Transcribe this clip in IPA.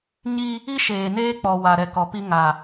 ɲ i˦ | i˦ ʃ eː˨ n eː˦ k͡p ɔ˨ w a˨ ɾ ɛ˨ k ɔ˨ p i˦ ŋ a˨

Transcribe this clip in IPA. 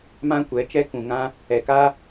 m ã˦ kʷ ɛ˨˦ t͡ʃ ɛ˦ k ũ˨ ŋ ã˦ | ɛ˨ k a˦

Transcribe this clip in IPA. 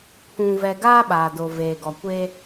pʰ ũ˨ v ɛ˨ ɡ aː˦ ɓ aː˨ d o˨ v eː˨ ɡ ɔ˨ kʷ eː˦

